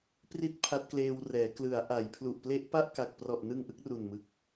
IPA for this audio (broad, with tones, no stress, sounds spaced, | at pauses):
p r i˥˩ t̚ pʰ a˦˥ t̚ k l eː˧ w r ɛː˩˦ k l ɯ˩˦ a̯ ʔ a˩˦ j pʰ l u˨˩ ʔ p l e˦˥ ʔ p a˥˩ ʔ k a˨˩ k̚ p r ɔ˨˩ ʔ n ɯ˧ ŋ ʔ ɯ˥˩ k̚ r u˨˩ n m ɯ˨˩ k̚